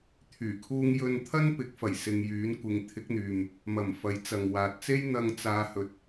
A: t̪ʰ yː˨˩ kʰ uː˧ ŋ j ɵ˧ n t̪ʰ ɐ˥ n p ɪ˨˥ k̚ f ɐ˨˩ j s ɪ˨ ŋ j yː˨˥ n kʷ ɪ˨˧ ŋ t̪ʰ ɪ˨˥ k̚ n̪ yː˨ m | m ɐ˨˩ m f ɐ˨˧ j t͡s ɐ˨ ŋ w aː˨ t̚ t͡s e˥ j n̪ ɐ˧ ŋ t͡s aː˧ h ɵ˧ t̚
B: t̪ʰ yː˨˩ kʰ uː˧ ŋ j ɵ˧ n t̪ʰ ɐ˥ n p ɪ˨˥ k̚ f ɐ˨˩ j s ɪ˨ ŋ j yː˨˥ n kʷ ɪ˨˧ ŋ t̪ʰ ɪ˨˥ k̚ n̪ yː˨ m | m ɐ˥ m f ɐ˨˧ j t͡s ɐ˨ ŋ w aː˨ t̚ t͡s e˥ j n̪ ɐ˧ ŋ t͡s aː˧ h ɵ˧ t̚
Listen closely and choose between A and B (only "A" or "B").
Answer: A